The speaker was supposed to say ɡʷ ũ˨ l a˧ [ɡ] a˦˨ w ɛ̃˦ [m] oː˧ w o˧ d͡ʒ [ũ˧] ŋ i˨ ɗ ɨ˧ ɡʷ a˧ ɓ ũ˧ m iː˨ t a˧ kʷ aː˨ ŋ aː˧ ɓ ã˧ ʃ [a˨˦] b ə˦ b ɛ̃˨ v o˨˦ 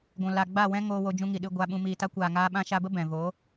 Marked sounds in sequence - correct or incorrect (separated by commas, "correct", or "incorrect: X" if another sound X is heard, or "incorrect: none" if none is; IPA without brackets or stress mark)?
incorrect: ɡ͡b, incorrect: ŋ, correct, incorrect: a˧